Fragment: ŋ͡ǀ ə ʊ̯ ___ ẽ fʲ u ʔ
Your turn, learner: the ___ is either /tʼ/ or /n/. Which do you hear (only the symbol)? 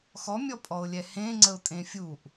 tʼ